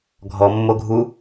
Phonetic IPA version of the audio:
ɡʱ ɔ mː o ɡʱ u

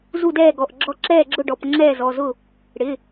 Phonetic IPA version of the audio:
z u˥˩ d ɛː˥˩ ɡ ɔ˩˧˩ ʔ ɡ͡ǁ ɔ˥˩ ǁ ɛː˥˩ ɡ͡ǁ ʊ˥˩ ɖ ɔ˩˧˩ p ŋ͡ǁ ɛː˥˩ z ɔ˩˧˩ z ʊ˥˩ | ɽ ɪ˩˧˩

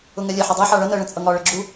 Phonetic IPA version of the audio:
ʊ ŋ ɛ lʲ ɛ ħ ɪ dˤ ɛ ħ ɑ ɭ ʌ n ɜ ɭ ə̃ t͡sʼ ʌ ŋ ɒ ɭ ə ɡ͡ǁ u

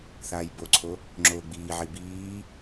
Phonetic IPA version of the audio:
θ aː j b o ǀʰ o | ŋ͡ǁ oː ɡ͡b iː ʕ i b iː

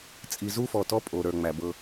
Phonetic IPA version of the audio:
t͡sʼ i˨ z u˦ f ɔ˨ t ɔ˦ pʼ o˨ ɾ ə˞˨ ŋ͡m æ˨ b ɤ˦

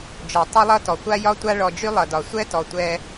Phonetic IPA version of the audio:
d͡ʒ ɔ˩ tˤ ʌ˥ lˠ ʌ˥ t ɔ˩ kʷ a˥ j ɒ˦ tʷ a˦ ɭ ɔ˨ d͡ʒ y˥ lˠ ʌ˩ d ɒ˩ sʷ ɛ˦ t ɔ˩ tʷ ɛ˨

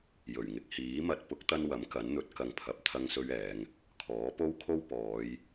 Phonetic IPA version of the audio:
j ɵ˨˩ ɥ ŋ ɪ˨ k̚ h iː˨˥ m ɐ˧ t̚ p ʊ˨˥ k̚ t̪ ɐ˧ n w ɐ˨˥ m k ɐ˨˥ n n̪ ɵ˨˥ t̚ k ɐ˨ ŋ pʰ ɐ˨ p̚ t̪ʰ ɐ˧ ŋ s ɵ˧ ɥ ɛː˨˧ ŋ | kʰ ɔː˨˥ p o˥ w kʰ o˥ w p ɔː˨˧ j

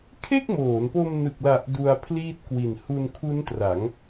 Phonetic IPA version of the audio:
kʰ e˥˩ k̚ m oː˩˦ n p o˧ m n ɯ˨˩ k̚ l a˨˩ ʔ d u˧ a̯ pʰ l iː˥˩ t̚ k w i˨˩ n h u˧ n kʰ u˦˥ n t r a˩˦ ŋ

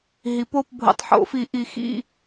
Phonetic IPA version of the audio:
ɦ i˩˥ p o˧˥˧ p bʱ o̰˨˩ tˤ ħ o̰˨˩˦ f i˨˩˦ ʔ i˨˩ x ḭ˦˨

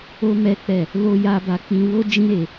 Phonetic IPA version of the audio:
o˦ m ɛ˦ k͡p ɛ˦˨ | l o˦ j a˦ b a˧ k͡p ĩ˧ w o˦ d͡ʒ ĩ˦ ɾ e˧

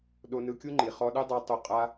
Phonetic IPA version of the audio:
ɗ o˧ n ɯ˧ kʲ u˦ ŋ͡ǃ i˨ χ ɔ˧ ɗ ɯ˦ dˤ a˧ tˤ u˦ qʼ a˦

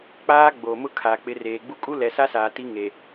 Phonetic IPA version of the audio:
k͡p aː˦ ɡ͡b oː˨ m ʊ˦ kʰ aː˨ k͡p ɪ˨˦ r eː˨ ɡ͡b u˦ kʼ u˦ l ɛ˨ s a˦ s aː˨ t i˦ ŋ e˨

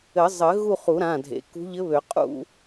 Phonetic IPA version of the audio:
ɘ˨˩˦ zˤ ɘ˨˩˦ ɣ u˥˧ χ u˨˩˦ ɾ ã˩˧˩ dʱ ḛ˩˥ k ṳ˧˥ ʎ ɘ˧˥ β ø˨˩˦ qʼ ṵ˥˧

